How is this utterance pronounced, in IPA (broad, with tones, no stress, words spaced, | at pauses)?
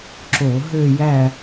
ǁo˧˩˧ ɦø˥˧jæ˥˧